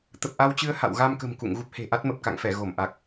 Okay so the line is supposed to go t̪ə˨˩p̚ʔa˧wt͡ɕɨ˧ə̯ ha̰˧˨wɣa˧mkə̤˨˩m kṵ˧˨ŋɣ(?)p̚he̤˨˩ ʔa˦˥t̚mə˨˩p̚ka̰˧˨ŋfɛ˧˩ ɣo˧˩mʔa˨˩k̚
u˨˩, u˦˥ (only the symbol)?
u˦˥